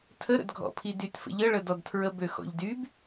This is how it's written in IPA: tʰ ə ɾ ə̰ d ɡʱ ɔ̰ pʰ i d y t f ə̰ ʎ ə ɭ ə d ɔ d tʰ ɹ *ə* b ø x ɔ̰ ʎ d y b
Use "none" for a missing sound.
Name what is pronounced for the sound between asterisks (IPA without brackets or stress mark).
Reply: ə